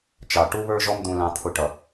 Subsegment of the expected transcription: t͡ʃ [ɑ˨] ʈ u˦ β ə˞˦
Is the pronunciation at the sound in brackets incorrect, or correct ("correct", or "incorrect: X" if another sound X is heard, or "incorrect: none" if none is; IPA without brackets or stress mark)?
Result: correct